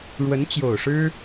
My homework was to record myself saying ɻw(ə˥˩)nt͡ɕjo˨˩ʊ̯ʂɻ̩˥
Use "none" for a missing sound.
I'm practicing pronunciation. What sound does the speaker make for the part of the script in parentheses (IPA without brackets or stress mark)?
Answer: ə˧˥